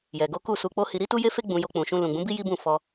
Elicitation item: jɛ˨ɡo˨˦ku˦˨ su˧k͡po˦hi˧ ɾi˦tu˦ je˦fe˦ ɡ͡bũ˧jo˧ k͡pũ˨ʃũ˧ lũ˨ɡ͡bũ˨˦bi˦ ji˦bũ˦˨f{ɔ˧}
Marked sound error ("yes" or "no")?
no